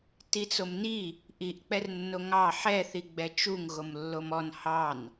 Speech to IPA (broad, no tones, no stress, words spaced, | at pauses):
tit͡somni | ʔiʔ k͡pɛrnːoŋɑ ħɛθi ɡ͡bɛt͡ʃuŋ ɣomlːomɔn hɑn